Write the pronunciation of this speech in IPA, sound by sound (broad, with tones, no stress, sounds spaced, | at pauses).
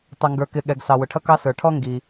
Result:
tˤ ʊ˩ ŋ ɡ ə˞˩ k ɪ˩ ɠ ɛ˩ ɡ s ɑ˩ w ʊ˩ ʈʰ ʌ˥ k ɑ˥ s ə˞˩ ʈʰ ɔ˥ ŋ ɡ i˩